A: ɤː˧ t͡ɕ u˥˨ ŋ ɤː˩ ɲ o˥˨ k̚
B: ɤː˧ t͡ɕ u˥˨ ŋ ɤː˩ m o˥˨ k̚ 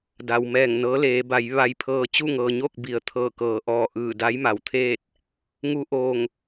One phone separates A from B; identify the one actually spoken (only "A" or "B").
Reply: A